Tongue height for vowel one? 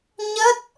mid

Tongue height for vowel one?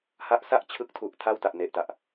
low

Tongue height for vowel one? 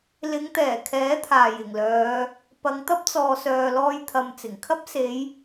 high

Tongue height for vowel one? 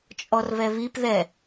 mid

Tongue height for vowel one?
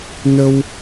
mid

